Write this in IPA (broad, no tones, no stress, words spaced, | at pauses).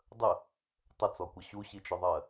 dˤə | tˤət͡sɔkʷʌ ɕuɕit͡ʃʊðˤɜ